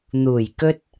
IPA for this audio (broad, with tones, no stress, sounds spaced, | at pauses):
n̪ uː˨˩ j k ɵ˥ t̚